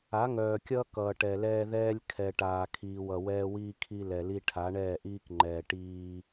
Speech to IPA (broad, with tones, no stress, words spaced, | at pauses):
a˨˦ŋœː˨kʲʌː˦ kʌː˨ʈɛ˨lɛː˦ ðɛː˦lʲ kʰɛ˨ʈaː˨kʰiː˨w ʌ˨wɛː˦wiː˦ kʰi˦lɛ˨li˦ ʈʰa˨˦ɳɛː˦˨ʔiː˦kŋ͡ǃɛː˨ ʈiː˦